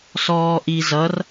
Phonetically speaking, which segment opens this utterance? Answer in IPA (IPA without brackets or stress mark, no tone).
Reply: s